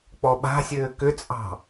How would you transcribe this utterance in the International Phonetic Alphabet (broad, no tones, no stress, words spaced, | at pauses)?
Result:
k͡pɔɓa̤sʲɘː kʏt͡sʼɑ̤